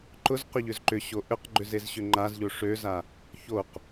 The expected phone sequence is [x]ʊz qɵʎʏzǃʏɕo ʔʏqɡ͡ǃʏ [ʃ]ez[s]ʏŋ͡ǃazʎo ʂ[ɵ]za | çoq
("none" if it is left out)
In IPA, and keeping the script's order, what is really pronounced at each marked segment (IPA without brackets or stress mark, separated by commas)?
ǃ, z, ɕ, ø